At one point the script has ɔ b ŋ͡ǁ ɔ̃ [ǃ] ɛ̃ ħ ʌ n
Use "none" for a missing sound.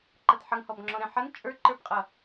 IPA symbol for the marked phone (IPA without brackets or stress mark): ɾ